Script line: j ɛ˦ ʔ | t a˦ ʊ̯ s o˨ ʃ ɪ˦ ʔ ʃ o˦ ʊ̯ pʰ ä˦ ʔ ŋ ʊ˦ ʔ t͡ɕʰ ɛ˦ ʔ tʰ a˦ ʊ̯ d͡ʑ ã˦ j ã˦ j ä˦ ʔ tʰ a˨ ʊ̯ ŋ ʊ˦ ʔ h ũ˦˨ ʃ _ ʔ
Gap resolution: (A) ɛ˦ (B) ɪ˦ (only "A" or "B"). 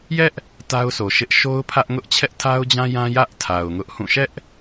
A